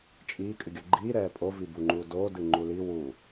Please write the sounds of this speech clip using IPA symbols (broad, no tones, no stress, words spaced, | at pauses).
t͡ʃʼiː kʼɨɡʲoɡ͡ǃiː ɾɛːpʼo vibuŋ͡ǃuːdoː dɨŋ͡ǃuli wu